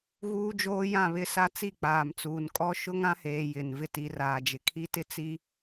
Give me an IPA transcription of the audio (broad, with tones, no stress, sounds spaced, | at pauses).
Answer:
ɣ uː˦ d͡ʒ oː˦ j ã˦˨ β ɪ˦ s a˦ t͡s i˦˨ k͡p aː˨ m t͡s uː˨ n kʼ ɔ˦ ʃ ʊ˦ ŋ ã˦ h eː˨ j ɪ˨ n v ɪ˦ t i˨˦ r aː˨ d͡ʒ ɪ˨ kʰ i˦ t ɪ˦ t͡s i˦